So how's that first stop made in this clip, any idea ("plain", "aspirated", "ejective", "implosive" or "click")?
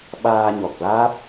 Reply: implosive